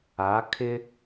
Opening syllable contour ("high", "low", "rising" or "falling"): rising